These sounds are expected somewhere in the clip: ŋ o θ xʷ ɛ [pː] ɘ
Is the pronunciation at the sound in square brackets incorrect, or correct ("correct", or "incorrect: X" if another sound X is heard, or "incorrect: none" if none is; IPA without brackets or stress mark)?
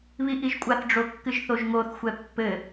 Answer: correct